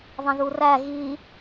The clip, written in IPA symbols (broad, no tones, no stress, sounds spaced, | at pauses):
ðˤ ə̃ ð u r æ ɣ i